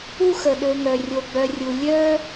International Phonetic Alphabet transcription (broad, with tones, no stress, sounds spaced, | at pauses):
u˥ x ə˩ ɗ ø˨ ŋ œ˩ rʲ o˨ ɡ͡b œ˨ rʲ u˩ lʲ œ˥